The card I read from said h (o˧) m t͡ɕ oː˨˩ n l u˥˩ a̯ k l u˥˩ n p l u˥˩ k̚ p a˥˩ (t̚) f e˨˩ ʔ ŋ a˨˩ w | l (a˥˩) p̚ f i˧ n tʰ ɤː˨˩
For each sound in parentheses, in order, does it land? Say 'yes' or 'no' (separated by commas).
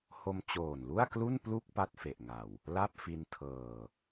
yes, yes, yes